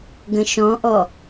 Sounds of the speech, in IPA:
ɡə̃ʃɔ̃ʔɔ

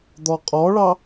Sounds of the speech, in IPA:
d̪ɔqʼɔɭɑ

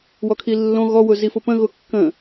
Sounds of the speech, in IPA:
wɔkʰilːõ ɣɔwʊ zifʊpə̃ɣʊ kːə̃

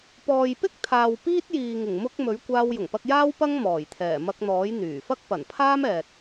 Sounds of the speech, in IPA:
pɔː˨jpɪ˥k̚ t̪ʰaː˨wpiː˥t̚jiː˨ ŋɪ˨˩ŋmʊ˧k̚ mɵ˨˥ɥkʷaː˧w jʊ˨˩ŋpɐ˧k̚jaː˥w pɐ˥ŋmɔː˨˩jt̪ʰɛː˨˩ mɐ˧k̚n̪ɔː˨˥j n̪yː˨˩fɐ˥k̚ pɐ˨˩npʰaː˥mɛː˨t̚

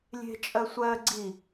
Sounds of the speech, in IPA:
lʲe̤t͡ʃʼɜ sʷɜ ɡ͡ǀi

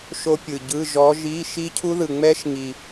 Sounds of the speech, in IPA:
ʃo˦˥pʲɯ˨˩ɟɯ˧˥˧ ʒɔ˨˦ʒi˧˥˧ ʃi˦˥ cʰu˦˥ðɯ˨˩ŋ͡mɛ˦˥ʃ ŋi˨˩

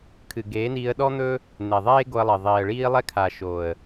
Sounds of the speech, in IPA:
kʰɨ˨ɡeː˨˦ niː˧ə̯ɗɔ˦n̪ɵ˦ | n̪e˨ðˤeː˦ɡo˧ə̯lˠɪː˨ ðˤiː˨ə̯ɭiː˦lˠɛ˦kʰa˨ ʃo˨ə̯

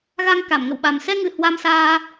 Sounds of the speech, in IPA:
ɣa˧ŋka˧˩mŋə̰˧˨wɓa˨˩m sɛ˧ŋɨ˨˩ hwa˧msaː˧

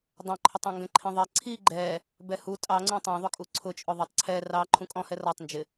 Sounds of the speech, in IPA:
dˤæ̃ǃʰʊtˤɑ̃ŋɡɛ̃ ǃʰĩðˤɛ ǀʰi ɡ͡ǃɛ | bɛhu tʼɑŋ͡ǀũ tˤæ̃ðˤʊkʼu ǀʰʊt͡ʃʼʊ ðˤɜtˤǀʰɛ rɑ ǃʰũkʼɔ̃hɛ rɒtˤnd͡ʒɪ

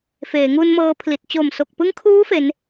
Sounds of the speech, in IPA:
feː˩˦ ŋuː˧nmɤː˧pʰli˨˩t̚ t͡ɕo˨˩mso˨˩k̚pɯ˦˥ŋkʰuː˦˥ fe˦˥n

